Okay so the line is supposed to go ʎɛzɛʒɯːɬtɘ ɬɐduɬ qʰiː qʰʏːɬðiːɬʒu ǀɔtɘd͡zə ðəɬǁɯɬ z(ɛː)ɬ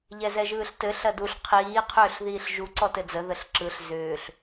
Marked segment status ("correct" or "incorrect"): incorrect